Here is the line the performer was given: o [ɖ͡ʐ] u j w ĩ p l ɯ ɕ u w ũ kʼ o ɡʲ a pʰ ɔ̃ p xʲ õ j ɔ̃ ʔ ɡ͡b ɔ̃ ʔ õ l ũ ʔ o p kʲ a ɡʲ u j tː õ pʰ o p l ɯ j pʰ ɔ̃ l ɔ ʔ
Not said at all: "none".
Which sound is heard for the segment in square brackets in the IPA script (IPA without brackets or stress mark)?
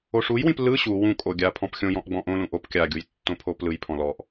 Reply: ʂ